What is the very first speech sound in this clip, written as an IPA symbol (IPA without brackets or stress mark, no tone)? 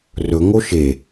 r